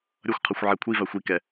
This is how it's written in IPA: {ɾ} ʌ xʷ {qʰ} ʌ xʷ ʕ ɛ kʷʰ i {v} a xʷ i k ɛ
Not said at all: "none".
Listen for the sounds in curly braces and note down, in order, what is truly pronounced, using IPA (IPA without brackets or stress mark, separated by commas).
ɾʲ, qʰ, v